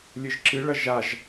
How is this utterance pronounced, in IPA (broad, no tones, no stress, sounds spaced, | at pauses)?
lʲ ɨ ʒ ǁ ɨ ɭ ɐ ʒ a ʒ